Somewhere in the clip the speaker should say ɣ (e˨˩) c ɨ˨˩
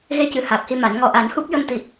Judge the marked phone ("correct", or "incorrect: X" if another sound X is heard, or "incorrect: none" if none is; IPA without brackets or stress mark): incorrect: e˧